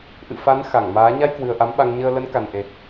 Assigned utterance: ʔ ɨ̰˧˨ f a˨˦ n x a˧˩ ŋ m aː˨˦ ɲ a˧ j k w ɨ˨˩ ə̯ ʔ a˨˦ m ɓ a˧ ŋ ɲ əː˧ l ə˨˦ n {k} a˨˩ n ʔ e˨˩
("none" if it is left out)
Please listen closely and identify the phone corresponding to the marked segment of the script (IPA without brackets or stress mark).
k